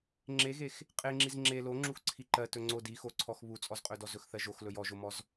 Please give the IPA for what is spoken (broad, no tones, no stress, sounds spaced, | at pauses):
ŋ͡ǁ e ɣ e x | qʼ e ŋ͡ǁ i z ŋ͡ǁ e l o ŋ͡ǁ u x ǀʰ i ǃ ɜ t ɵ ŋ͡ǀ o d i x o ǀʰ ɔ x β u t͡sʼ ɔ z qʼ ɵ d ɔ z ɵ x θ ɜ ʒ o x l ɵ j ɔ ʒ o m ɔ z